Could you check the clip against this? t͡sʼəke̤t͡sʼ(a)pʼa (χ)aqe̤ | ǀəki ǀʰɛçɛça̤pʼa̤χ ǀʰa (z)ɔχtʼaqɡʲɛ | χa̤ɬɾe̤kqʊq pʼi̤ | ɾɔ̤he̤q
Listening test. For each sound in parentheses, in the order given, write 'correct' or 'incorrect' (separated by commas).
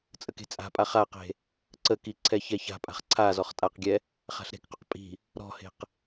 incorrect, correct, correct